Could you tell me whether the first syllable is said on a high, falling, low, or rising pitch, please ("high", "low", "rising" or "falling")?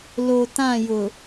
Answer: low